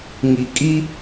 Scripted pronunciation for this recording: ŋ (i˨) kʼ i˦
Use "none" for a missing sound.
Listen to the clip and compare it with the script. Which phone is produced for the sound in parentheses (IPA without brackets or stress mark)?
i˨